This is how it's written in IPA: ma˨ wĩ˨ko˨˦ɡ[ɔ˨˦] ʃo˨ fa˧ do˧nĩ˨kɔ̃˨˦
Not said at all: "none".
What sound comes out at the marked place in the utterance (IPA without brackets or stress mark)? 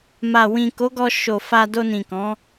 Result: ɔ˧